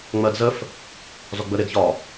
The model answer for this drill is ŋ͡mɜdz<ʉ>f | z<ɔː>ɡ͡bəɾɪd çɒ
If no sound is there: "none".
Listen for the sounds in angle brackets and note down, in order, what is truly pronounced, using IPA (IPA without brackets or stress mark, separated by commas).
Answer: ə, ɔ